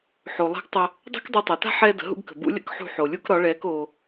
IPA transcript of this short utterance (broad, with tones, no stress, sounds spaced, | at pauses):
ħ o˩ lˠ ɛ̤˧˥ ɡ tˤ ə˧ | dˤ ɛ̤˥ k dˤ ɛ˧ tˤ ɛ˩ t a̤˥ ħ ɛː˧ d ə̤˩˧ ɦ ṵ˧ ɡ k ə̤˩ b ṵ˧˥ lʲ ə̰˥ k ħ ṳ˧ ħ o˩ lʲ u˥ k ɾ ɒ˧˥ ɭ ɛː˧˥ k o˧